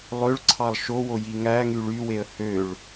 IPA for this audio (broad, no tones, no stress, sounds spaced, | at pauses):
lˠ ø ɭ ǀʰ ɑ lˠ ʃ o w o j i ŋ æ ŋ y ɭ y w e ə̯ h ø ɭ